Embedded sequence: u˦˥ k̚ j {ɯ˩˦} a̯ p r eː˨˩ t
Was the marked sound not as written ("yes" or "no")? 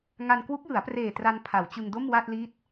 no